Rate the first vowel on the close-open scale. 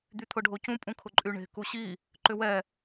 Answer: close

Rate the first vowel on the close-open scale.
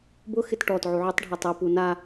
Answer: close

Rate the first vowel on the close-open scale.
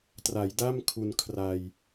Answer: open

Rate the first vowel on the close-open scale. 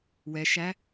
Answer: mid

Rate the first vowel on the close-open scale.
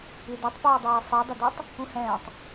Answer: close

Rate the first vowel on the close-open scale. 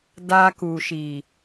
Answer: open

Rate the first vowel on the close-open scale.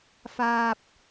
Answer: open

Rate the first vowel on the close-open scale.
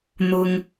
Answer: close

